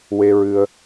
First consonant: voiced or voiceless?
voiced